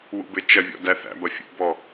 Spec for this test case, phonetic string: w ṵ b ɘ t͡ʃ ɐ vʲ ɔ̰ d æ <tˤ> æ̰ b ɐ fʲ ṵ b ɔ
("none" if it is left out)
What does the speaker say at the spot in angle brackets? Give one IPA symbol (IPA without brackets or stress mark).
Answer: θ